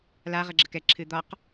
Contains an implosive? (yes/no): no